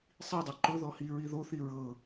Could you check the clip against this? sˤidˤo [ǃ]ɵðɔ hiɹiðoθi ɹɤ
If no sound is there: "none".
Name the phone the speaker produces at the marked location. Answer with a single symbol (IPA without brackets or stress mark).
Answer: ǃ